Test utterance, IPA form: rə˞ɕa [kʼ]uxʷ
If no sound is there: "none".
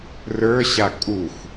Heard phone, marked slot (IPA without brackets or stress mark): kʼ